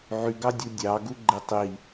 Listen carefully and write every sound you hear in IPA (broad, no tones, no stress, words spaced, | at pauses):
ʕyɡɑdʲu dʲɑɡuɡ͡ǃe tˤi